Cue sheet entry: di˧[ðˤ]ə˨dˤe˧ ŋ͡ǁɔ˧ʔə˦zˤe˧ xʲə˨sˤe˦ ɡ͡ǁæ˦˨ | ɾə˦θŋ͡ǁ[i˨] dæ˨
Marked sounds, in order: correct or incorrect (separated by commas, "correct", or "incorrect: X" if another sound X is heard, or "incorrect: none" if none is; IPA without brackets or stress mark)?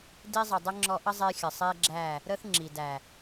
incorrect: zˤ, correct